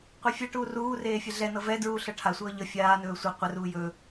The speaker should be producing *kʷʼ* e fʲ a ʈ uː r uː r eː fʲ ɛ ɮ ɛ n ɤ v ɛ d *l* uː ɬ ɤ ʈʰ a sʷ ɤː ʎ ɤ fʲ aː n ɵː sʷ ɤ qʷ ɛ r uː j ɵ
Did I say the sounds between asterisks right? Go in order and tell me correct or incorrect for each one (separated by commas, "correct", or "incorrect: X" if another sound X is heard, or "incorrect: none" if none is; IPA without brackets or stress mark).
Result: incorrect: qʷ, incorrect: ɹ